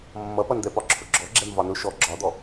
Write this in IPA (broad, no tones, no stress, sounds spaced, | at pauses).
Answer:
mː ʌ p ʌ n d̪ ɛ p ɒ ǁʰ ʊ ɡ͡ǁ ɔ ɡ͡ǁ ɛ m v ɒ n ʊ ʃ ɔ ɡ͡ǁ ɒ d̪ ɔ